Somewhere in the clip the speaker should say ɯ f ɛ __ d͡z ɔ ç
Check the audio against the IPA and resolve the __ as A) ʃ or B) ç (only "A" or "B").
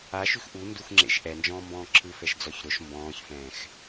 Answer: A